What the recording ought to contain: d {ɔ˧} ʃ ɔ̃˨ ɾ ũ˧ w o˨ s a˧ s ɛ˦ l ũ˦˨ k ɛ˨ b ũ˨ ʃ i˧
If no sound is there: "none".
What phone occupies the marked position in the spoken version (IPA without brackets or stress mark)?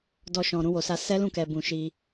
ɔ˧